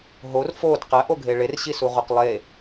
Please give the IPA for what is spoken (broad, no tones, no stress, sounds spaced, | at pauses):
ɦ o r f o d q æ ʔ o ɡʱ e ɭ e r ɕ i s u ʁ o q lˠ e